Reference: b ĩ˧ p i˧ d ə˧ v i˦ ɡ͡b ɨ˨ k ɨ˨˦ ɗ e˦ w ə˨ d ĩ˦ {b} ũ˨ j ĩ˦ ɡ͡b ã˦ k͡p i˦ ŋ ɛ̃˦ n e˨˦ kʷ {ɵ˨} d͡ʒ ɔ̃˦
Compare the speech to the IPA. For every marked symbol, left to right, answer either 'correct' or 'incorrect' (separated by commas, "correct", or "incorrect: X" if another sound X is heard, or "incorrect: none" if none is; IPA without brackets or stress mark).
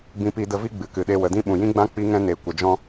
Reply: incorrect: ɓ, incorrect: ə˨